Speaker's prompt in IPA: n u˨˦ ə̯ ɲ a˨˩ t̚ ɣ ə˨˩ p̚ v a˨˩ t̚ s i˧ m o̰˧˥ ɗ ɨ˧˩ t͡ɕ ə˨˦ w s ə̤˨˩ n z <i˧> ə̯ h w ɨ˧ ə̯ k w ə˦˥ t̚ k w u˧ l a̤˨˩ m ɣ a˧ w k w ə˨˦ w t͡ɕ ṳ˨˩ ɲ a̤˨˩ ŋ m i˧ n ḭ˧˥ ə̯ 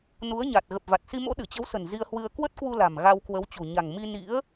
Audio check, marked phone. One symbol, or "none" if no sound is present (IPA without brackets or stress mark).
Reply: i˧